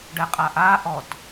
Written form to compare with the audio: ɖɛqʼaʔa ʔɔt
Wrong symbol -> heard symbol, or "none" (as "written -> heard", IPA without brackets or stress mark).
none